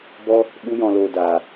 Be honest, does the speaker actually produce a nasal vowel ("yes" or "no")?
yes